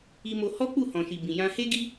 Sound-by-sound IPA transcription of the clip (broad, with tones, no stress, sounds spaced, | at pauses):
i˧ m o˧ h ɔ˦ k͡p u˦˨ h ɔ̃˨ ʃ i˨ b ĩ˨ j ã˧ h e˦ ɡ i˦